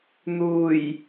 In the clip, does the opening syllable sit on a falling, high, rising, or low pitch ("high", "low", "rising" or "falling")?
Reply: low